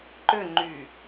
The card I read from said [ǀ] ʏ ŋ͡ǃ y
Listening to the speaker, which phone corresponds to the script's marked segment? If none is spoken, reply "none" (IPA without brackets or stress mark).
ǃ